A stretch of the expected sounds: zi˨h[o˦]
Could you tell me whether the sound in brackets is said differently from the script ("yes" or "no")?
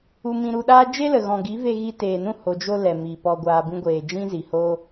no